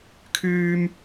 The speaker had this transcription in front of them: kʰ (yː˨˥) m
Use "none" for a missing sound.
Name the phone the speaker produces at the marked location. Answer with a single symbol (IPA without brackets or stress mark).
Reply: yː˥